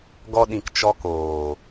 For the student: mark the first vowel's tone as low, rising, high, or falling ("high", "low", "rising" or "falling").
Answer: high